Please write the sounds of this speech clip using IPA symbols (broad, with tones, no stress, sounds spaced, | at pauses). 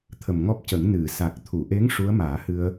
t̪ʰ ə˨˩ m ŋ ɔ˦˥ p̚ c ə˨˩˦ ŋ n ɨ˨˩˨ s a˨˩ k̚ t̪ʰ u˨˩˨ ʔ e˧˥ ŋ ʂ u˧˥ ə̯ m aː˨˩˦ h ɨ˧ ə̯